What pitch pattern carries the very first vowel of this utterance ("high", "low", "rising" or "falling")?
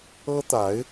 high